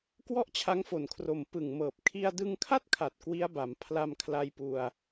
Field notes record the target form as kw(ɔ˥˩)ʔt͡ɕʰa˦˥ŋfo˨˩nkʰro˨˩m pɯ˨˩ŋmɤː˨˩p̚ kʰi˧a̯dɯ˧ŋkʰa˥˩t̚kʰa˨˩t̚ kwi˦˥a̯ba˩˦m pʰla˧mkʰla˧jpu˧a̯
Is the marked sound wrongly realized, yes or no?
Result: no